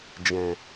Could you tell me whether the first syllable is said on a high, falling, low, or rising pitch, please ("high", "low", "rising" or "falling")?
low